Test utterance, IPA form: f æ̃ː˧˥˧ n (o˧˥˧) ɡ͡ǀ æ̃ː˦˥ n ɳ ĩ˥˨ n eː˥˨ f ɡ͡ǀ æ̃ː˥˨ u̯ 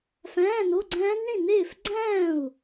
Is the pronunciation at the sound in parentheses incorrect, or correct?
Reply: correct